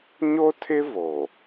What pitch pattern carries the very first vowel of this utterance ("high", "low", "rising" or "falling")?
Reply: high